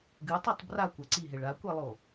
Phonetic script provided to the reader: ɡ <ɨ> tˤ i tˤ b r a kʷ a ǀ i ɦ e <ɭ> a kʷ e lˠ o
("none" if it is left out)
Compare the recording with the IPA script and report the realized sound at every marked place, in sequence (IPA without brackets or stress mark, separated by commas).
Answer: ɨ, ɭ